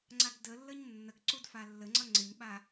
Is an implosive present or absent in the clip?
present